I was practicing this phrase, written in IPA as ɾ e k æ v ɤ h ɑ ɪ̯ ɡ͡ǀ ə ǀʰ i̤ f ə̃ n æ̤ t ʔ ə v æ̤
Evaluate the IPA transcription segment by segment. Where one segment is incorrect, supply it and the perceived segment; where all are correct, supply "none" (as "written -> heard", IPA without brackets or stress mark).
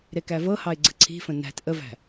none